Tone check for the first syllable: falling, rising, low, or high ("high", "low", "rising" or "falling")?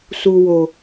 low